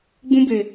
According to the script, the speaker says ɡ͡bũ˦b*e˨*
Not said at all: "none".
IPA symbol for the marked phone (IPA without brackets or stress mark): e˨